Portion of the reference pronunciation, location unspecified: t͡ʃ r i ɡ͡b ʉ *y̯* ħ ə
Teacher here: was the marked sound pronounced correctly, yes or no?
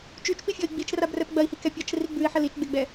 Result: no